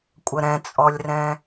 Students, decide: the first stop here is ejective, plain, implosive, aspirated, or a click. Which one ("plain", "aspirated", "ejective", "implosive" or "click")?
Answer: ejective